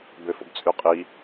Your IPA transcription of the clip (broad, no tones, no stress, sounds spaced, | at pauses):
b ø f o̰ b t͡sʼ y qʼ i